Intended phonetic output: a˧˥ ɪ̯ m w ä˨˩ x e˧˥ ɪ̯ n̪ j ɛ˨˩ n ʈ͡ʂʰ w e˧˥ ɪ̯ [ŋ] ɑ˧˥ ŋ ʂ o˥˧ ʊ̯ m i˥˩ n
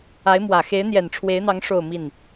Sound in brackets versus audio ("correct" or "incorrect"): incorrect